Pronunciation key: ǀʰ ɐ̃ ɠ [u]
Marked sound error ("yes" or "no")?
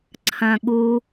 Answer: no